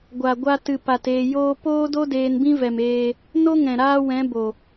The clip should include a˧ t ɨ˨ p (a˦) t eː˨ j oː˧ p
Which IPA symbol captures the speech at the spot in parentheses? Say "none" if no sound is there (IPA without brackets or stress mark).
a˨